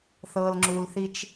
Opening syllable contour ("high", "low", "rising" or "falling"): low